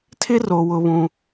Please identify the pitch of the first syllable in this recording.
high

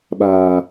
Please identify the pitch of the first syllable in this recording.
low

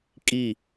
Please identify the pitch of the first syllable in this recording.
falling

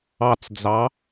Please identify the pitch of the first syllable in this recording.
low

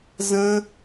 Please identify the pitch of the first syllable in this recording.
high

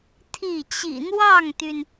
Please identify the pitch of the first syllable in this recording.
falling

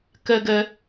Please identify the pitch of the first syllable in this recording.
high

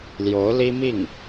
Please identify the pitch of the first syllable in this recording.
rising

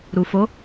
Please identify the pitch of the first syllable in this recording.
low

